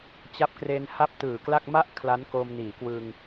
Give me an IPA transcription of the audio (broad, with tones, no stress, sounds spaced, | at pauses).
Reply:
t͡ɕ a˦˥ p̚ k r e˧ n h a˥˩ p̚ t ɯː˨˩ k l a˥˩ k̚ m a˦˥ ʔ kʰ l a˦˥ n k oː˧ m n iː˩˦ k w ɯ˧ ŋ